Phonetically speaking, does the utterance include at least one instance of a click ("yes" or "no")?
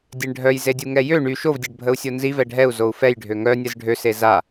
no